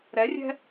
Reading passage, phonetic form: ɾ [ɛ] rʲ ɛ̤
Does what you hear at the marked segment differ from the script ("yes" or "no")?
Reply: no